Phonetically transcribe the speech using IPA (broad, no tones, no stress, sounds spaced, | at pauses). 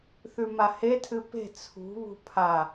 θ ʉ m a h e tʰ ɨ p e̤ t͡sʰ ṳ β ṳ pʰ a